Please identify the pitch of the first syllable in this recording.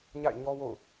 falling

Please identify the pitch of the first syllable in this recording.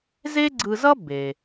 high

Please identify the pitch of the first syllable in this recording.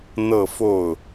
falling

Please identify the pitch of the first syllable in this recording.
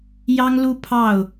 high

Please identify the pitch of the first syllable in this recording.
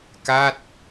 falling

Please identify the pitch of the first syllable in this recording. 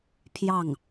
falling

